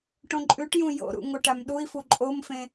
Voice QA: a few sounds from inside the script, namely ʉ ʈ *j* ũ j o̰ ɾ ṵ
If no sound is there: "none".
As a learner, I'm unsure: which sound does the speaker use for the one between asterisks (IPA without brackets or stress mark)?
j